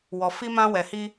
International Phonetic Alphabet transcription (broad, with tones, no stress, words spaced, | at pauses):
wɔ˨fi˧ mã˧wɛ˨hi˧